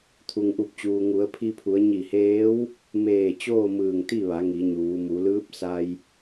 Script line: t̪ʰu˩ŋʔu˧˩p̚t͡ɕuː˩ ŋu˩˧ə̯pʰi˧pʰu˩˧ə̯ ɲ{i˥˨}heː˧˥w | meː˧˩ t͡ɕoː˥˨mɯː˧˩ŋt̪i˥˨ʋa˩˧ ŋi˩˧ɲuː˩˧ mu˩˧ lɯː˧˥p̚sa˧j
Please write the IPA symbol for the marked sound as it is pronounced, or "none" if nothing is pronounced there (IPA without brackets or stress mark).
i˧˩